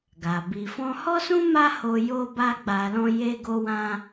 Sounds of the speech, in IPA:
ɡ a˨ b i˨ f ɔ̃˧ h ɔ˦ s ũ˦ m a˦ h o˧ j o˦ b a˦ ɡ͡b a˧ l ɔ̃˦ j e˦ ɡ o˦ w ã˦

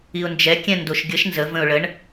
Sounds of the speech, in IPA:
i ʊ̯ n d͡ʒ ɛ kʲ ɛ̃ n d o ʃ ɡʲ ə ʃ n z ə v ə̃ ʊ̯ ɭ ə ɳ

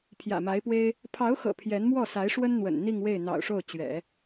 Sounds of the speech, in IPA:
pʰ j ä̰˨˩ m a˧˥ ɪ̯ p w e˥ ɪ̯ | pʰ ɑ˧˥ ʊ̯ x ɤ̰˨˩ pʰ j ɛ˧˥ n m w ɔ˥˩ s a˧˥ ɪ̯ ʂ w ə˥ n n̪ w ə̰˨˩ n n̪ i˥˧ ŋ w e˥˩ ɪ̯ n̪ ɑ̰˨˩ ʊ̯ ʂ o˥˩ ʊ̯ t͡ɕ ɥ ɛ̰˨˩˦

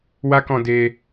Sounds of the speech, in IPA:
w a˦ k ɔ̃˧ d e˧

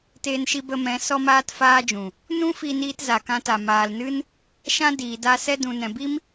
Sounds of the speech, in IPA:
t eː˧ n ʃ i˧ b ə˧ m ɛ̃˨˦ s ɔ˦ m aː˦ t f aː˦ d͡ʒ ũ˨ | n ũ˦ f i˧ n iː˧ t z a˨ k ã˧ t a˨ m aː˨ l n ɨ˦ n | ʃ ã˦ d iː˨ d a˧ s ɛ˧ d ũ˨ n ɛ̃˨ b i˦ m

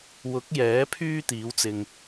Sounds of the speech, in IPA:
w ʊ˨˥ k̚ j ɛː˨˥ pʰ yː˥ t̪ iː˨˥ w t͡s ɪ˧ ŋ

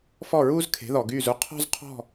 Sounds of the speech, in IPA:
f ɔ˥˩ ɹ uː˥ z kʰ e̤˩˥ ð ɔ˩ ɡ yː˥˩ z u˥ qʰ ɔ̤˥ z qʰ ɔ̤˥˩

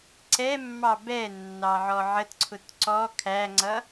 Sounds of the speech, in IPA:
ǀ ɛ mː ɑ b ɛ nː ɑ ʕ ɔ ʕ ə t ǀʰ ʊ t ǀ ɔ kʰ æ ŋ͡ǀ ʌ

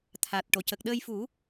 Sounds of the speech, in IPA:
t̪ʰ a˨˩ t̚ ʈ o˨˩˨ c ə˨˩ k̚ ɗ əː˧ j f u˨˩˦

